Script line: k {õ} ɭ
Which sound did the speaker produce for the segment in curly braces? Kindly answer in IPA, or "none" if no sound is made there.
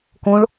õ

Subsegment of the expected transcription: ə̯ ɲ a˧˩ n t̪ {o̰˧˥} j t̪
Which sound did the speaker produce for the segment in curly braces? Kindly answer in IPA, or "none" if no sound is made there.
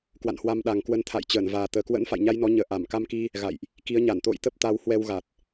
o̰˧˨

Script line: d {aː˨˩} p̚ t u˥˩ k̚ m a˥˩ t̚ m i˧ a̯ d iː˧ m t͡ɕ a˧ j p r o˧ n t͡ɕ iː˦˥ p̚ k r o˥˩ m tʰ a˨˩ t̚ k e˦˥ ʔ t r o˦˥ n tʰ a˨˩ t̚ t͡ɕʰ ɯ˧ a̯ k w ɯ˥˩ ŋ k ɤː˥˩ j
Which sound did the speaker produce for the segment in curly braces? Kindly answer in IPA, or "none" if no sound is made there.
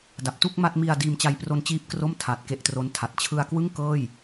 a˨˩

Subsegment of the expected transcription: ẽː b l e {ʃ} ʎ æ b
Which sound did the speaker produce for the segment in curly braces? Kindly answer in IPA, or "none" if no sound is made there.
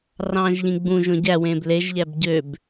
ʒ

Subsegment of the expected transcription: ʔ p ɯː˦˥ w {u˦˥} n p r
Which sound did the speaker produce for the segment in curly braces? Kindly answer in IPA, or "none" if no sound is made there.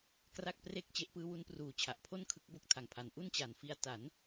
u˦˥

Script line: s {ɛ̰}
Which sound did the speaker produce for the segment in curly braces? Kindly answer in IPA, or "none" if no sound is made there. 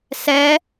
ɛ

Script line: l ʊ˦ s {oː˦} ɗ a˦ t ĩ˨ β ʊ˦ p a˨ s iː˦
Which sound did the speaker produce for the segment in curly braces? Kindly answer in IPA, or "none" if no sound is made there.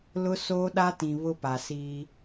oː˦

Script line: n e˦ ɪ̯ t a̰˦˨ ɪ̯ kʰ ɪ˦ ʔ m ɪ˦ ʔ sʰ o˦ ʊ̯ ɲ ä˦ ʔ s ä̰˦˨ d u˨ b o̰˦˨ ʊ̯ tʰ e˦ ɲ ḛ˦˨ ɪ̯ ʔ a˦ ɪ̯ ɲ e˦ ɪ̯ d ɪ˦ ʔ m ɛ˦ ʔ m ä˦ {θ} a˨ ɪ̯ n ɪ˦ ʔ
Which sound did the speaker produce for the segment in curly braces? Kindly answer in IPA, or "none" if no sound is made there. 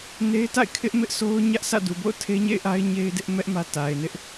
t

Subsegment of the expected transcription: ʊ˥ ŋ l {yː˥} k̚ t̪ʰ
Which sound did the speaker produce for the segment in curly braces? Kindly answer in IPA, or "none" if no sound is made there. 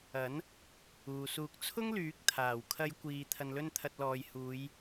yː˨˥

